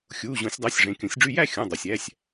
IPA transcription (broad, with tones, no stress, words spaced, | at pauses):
xʲuː˩˧˩ʑõ˨˩˦sʲdˤɑ˩˧˩sʲ ʐẽ˩˧˩kʲõ˨˩˦sʲɖ͡ʐy˥˧ jæ˥˧xʲũ˩˧˩ dˤo˩sʲæ˩˧˩sʲ